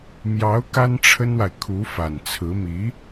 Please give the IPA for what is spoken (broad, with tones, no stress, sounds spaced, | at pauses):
m j ɑ˧˥ ʊ̯ k a˥ n ʈ͡ʂʰ ə˥ n w a˨ ɪ̯ kʰ u˧˥ f a˨˩ n t͡sʰ ɹ̩˧˥ m i˧˥